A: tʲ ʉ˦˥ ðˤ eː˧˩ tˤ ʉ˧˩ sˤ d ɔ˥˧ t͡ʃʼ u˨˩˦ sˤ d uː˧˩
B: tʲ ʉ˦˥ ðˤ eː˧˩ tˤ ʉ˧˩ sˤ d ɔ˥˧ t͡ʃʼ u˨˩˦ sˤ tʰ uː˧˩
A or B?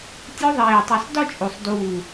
A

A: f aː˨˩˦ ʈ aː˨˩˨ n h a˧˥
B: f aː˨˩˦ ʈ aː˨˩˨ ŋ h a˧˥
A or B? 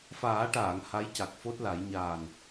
B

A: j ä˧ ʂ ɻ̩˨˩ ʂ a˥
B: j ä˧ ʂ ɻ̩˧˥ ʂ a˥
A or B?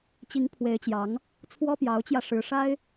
B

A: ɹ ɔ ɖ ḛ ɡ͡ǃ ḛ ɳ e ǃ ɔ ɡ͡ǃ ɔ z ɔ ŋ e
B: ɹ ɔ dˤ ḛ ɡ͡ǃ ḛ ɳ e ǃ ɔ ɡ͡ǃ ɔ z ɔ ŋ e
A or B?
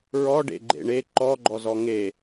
A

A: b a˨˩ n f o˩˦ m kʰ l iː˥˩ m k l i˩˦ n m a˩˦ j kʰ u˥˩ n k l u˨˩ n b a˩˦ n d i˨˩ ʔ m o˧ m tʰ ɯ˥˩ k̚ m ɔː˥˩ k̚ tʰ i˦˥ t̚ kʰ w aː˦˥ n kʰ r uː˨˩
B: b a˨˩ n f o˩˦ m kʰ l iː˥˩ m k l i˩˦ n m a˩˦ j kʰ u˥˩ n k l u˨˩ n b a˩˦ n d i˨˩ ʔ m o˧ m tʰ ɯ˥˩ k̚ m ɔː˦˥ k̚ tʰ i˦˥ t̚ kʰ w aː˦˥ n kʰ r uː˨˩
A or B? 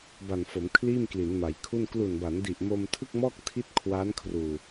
A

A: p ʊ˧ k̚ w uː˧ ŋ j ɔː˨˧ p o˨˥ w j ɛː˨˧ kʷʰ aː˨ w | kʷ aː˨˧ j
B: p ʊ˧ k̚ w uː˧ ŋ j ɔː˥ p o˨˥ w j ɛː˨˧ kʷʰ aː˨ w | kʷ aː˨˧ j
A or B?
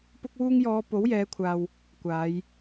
A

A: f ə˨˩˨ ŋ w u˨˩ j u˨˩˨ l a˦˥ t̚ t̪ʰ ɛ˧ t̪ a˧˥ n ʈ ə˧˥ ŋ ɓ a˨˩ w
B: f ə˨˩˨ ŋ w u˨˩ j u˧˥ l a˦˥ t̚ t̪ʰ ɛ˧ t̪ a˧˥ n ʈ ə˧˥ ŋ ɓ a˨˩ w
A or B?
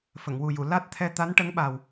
A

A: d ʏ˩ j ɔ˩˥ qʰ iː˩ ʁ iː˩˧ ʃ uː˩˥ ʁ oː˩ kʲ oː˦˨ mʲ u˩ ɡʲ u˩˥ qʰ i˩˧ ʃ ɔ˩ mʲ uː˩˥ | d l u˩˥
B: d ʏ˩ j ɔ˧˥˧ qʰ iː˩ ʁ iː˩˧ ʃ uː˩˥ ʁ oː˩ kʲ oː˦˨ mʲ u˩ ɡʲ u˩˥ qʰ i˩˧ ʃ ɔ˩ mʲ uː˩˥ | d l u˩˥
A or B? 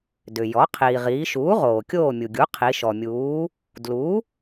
A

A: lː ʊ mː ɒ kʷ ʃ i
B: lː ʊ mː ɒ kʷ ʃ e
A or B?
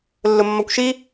A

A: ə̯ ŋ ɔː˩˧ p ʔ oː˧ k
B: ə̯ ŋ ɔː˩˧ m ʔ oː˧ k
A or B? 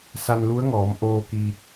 B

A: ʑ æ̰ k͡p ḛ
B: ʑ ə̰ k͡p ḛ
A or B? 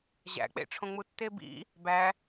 A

